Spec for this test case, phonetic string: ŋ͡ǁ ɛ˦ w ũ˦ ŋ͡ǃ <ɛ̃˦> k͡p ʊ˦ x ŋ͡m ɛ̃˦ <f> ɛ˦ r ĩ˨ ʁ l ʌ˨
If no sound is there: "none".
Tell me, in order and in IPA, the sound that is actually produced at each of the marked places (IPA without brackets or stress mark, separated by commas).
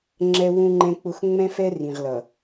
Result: ɛ̃˦, f